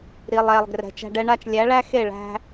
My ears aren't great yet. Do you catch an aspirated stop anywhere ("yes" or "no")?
no